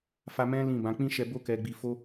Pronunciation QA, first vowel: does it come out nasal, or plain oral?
oral